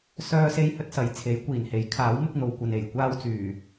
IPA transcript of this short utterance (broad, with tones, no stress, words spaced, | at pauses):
sœː˥ se˥jhɵ˥t̚sɐ˨˥jt͡sʰe˨˥j kʷiː˨˩nhe˨˥j kʰaː˨˥w mɪ˥k̚n̪o˨wkʷɐ˨n e˨˩jkʷaː˥wt͡syː˨˩